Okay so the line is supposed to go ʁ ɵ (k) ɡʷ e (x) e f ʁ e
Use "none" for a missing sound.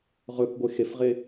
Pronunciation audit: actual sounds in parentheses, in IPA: k, x

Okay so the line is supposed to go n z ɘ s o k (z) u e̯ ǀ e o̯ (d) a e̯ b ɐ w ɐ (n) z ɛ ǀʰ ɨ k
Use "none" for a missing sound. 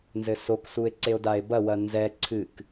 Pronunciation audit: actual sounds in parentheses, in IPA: s, d, n

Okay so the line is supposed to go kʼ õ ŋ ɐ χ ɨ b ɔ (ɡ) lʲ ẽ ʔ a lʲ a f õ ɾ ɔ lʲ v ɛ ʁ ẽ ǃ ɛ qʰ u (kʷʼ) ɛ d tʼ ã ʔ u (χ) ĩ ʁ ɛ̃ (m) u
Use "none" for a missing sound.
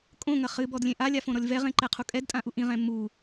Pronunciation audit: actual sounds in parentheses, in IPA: d, kʼ, ʔ, m

